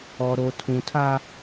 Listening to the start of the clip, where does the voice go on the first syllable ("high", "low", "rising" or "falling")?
low